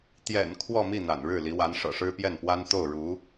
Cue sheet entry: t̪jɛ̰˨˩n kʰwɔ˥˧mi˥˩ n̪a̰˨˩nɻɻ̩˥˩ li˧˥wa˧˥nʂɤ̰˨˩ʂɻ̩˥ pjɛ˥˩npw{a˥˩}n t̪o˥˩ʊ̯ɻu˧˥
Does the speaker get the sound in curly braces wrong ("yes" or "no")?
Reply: yes